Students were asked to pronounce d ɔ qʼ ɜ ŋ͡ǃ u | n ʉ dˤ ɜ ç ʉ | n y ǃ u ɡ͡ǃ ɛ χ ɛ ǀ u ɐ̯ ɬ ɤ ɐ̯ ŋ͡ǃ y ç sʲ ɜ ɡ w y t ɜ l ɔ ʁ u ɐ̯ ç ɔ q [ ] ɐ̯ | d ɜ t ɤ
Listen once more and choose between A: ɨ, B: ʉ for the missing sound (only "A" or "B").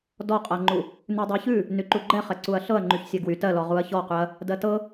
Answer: B